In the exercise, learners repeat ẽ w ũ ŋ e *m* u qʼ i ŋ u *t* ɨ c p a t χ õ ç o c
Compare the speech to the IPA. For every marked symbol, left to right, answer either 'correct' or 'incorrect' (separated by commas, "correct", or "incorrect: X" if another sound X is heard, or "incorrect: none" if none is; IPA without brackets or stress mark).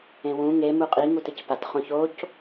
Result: correct, correct